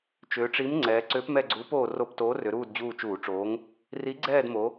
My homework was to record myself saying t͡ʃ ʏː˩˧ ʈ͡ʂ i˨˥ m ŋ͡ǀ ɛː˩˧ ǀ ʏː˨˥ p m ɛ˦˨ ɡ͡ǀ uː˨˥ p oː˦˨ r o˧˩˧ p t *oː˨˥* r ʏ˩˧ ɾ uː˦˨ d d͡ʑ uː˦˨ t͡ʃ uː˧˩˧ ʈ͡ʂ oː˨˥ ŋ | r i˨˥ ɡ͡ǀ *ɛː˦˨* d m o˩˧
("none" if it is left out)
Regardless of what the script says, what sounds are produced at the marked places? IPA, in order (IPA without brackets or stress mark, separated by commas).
oː˨˥, ɛː˦˨